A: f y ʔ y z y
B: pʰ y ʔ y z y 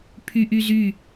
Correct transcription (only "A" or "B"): B